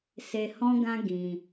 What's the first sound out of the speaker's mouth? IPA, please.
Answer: s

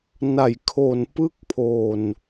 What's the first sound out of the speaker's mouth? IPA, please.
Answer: n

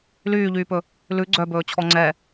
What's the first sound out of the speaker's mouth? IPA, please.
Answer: l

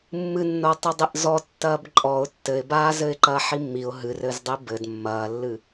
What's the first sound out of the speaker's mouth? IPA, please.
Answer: mː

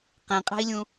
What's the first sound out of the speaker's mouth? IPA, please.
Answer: q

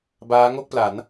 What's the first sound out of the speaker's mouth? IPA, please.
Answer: b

